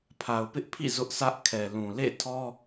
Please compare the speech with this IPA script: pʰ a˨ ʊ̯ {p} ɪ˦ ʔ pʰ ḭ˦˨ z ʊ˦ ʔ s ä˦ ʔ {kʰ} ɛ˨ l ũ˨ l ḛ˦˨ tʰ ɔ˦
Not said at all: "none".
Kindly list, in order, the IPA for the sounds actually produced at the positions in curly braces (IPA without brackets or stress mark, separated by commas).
p, kʰ